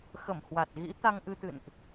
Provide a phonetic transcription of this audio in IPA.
xə˧˩mhwa˨˩t̚ ɣḭ˧˥ t̪a˧ŋʔɨ˧t̪ɨ̰˧˨nʔ

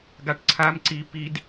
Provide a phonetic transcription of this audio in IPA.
ɡaʈǀʰam ǀi pid

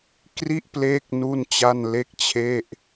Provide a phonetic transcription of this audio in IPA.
kri˥˩ʔpleː˦˥k̚ nu˥˩nt͡ɕa˥˩nle˥˩k̚t͡ɕʰe˥˩ʔ

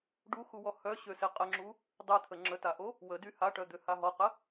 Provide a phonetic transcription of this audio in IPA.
ɖuxuwɔ hœɕøse qʼəŋ͡ǁu | dˤet̪ʰə ŋ͡ǁətaʔo | wədy haʈœd̪øha ɦɔqə

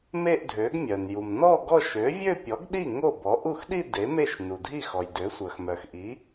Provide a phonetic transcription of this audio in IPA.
me˥˧ʔdʱø˩˥ɡ mʲœ˩nju˩m nɔ˥˧ ɡɔ˥˧ ʃø˩˥vʲø˥˧pʲɔ˩˥ɡɗi˥˩ ŋo˥˩bɔ˩˥ ʔu˥˩xɗi˥˧ de˩˥me˥˩ʃ nu˩dʱi˥˩xɔ˩j dø˩˥sʷœ˩xmœ˩xʔi˩˥

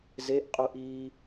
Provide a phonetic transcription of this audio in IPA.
zeʔqʼuʔiː

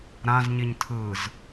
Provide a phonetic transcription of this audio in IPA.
ɾãz ɲiɲtʰɯz

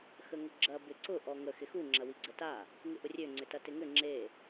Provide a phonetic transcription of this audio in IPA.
xəŋʊɡ͡ǁɐ bɪǀʊ ʔɔŋə xɪxu ŋ͡ǁɐwiɡ͡ǀəta | ŋɪʔʊrʲø ŋ͡ǀʏtɐtɪŋʏ ŋ͡ǁe

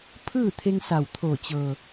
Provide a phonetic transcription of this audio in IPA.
pʰɯː˥˨t̪ʰe˧ŋsa˧˩w t̪ʰo˧˩t͡ɕɤː˩

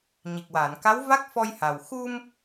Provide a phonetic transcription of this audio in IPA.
ɲi˨˩k̚waː˨˩˨nka˧˥wva˦˥k̚ fɔ˧jha˨˩w xu˧m

